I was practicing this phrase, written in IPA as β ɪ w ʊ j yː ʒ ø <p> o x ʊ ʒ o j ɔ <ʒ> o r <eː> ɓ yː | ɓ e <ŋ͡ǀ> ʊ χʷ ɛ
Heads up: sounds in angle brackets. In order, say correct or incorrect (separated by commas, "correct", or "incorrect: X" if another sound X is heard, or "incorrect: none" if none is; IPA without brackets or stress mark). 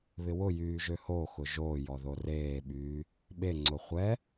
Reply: incorrect: h, incorrect: ð, correct, correct